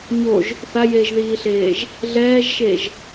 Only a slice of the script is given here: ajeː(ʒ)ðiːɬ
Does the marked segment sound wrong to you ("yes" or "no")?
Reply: no